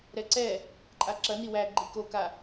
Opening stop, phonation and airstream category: click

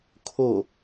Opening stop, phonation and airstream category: aspirated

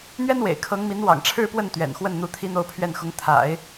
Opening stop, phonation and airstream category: aspirated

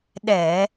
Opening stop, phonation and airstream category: implosive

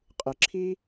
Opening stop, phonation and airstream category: ejective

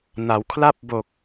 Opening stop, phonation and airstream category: aspirated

